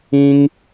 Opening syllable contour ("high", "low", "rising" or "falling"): high